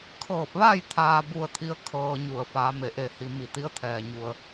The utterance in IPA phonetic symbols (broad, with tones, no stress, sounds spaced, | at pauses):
kʰ ɤː˧˩ p̚ ʋ a˥˨ j t̪ʰ aː˧ b u˧ ə̯ t̪ʰ i˧ ə̯ kʰ ɤː˧ ɲ u˧˩ ə̯ f aː˩˧ m e˩ ʔ e˧˩ h i˩ m i˧˩ t̪ i˧˥ ə̯ t̪ʰ ɛː˩ ɲ u˩ ə̯